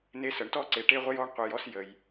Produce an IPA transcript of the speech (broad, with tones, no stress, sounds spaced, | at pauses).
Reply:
n e˧ s ə˩ ɳ t ɔ˥ ǀ e˩ ʈ e˥ ʁʷ ə˥ j ɔ˥ ɳ qʷ ɯ˩ j ɔ˥ s j ə˩ j